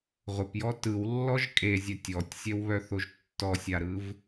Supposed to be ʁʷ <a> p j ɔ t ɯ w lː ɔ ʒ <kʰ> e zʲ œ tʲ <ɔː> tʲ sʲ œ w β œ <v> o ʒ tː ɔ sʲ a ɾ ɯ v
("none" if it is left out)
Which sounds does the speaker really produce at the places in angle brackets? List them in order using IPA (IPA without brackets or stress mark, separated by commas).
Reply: ə, kʼ, ɔ, θ